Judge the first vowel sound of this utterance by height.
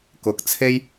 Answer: high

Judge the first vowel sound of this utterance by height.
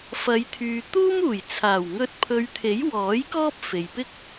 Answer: low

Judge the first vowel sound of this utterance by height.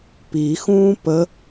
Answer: high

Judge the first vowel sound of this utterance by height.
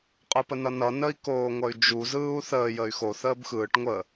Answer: high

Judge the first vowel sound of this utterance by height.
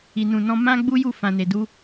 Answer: high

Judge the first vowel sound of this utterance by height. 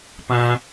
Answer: low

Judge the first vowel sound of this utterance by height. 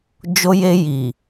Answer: mid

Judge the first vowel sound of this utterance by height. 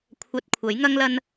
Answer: low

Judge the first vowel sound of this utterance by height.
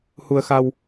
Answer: high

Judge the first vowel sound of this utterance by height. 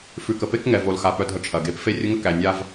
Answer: high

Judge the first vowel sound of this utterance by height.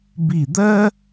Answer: high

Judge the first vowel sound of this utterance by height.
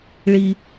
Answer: high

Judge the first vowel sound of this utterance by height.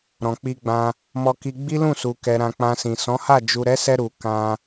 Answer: mid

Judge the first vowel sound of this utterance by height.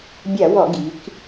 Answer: low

